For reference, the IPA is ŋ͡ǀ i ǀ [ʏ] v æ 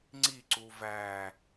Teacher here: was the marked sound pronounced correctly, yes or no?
no